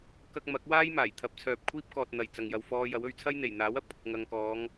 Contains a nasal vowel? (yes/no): no